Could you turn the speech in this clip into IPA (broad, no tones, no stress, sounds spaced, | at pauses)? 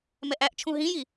m ɛ ʔ æ ʔ t͡ʃʰ ũ ɦ ĩ j i